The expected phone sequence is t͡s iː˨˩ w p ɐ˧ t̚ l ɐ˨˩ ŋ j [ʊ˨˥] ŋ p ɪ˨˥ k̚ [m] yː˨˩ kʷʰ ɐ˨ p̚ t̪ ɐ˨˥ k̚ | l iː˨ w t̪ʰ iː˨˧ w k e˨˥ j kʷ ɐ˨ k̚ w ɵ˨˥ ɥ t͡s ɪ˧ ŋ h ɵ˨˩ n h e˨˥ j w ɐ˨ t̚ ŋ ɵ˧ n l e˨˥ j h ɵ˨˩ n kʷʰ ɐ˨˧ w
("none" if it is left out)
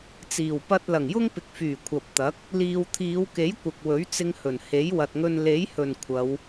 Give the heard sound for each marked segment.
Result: ʊ˥, f

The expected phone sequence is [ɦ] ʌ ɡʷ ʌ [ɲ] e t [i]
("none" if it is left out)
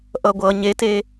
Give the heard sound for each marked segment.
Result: ʔ, ɲ, e

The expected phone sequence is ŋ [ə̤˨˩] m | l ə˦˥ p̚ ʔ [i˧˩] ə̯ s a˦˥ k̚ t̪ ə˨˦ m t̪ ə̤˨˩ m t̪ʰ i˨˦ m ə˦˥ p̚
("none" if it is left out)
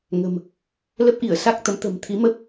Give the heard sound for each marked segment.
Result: ə̤˨˩, i˧˩

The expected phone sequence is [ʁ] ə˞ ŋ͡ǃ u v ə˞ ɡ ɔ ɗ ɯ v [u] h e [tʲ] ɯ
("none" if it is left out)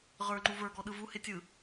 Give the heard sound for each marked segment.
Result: ʁ, u, tʲ

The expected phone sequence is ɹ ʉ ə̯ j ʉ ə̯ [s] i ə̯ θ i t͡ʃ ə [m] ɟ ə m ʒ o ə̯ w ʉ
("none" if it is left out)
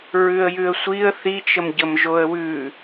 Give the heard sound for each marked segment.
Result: sʷ, m

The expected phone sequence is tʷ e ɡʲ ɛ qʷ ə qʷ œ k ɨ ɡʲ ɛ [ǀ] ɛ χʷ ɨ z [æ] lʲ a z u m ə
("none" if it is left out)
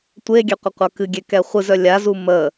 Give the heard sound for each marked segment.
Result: k, œ

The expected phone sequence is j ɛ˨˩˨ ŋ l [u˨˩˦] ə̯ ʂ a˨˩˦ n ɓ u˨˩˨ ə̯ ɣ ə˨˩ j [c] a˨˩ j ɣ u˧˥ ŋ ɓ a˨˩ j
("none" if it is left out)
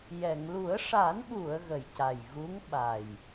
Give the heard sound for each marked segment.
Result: u˨˩˦, c

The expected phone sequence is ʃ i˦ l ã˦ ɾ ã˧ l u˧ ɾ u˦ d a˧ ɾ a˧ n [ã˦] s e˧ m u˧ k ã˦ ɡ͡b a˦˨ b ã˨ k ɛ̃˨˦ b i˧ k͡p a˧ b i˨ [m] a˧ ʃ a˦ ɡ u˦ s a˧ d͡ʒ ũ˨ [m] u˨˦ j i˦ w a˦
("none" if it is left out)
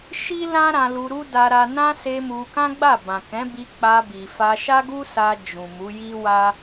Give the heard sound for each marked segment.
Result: ã˦, f, m

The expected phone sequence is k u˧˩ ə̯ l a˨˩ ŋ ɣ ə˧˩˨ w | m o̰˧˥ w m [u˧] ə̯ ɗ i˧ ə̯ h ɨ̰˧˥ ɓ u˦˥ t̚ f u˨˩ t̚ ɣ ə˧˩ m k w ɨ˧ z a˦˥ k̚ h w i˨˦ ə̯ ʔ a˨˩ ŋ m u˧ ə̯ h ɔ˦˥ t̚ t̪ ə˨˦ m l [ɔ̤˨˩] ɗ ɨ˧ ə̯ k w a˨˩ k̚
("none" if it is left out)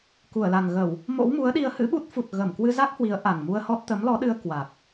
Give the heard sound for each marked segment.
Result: u˨˦, ɔ˨˦

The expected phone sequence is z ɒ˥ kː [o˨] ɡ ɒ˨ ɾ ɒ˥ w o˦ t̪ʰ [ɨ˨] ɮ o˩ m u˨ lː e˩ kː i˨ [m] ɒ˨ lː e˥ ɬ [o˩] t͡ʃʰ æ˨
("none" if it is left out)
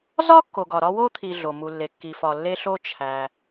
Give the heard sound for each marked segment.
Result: o˨, i˨, f, o˥

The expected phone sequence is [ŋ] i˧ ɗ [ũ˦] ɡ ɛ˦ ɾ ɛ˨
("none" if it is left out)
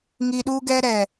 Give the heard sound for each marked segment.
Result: ŋ, u˦

